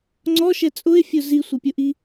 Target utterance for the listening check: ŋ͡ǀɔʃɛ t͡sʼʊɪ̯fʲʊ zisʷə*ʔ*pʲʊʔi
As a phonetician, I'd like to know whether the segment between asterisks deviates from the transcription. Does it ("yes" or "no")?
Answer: yes